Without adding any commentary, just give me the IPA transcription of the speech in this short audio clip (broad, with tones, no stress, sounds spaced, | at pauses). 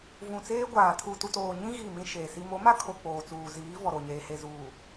v ũ˨ t͡s eː˦ ɡʷ aː˨ tʰ u˨ t u˨ t oː˨ ɲ ĩ˦ ɣ i˦˨ m ĩ˦ ʃ eː˨ s i˦ m o˨˦ m a˦ kʰ o˨ k͡p oː˨ t͡s uː˨ z iː˨˦ v ɔ˨ ɾ o˨ ɲ eː˨ h e˨ z uː˨